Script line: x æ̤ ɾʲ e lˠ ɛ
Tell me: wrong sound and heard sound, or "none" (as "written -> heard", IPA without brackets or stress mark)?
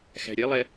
e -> ɛ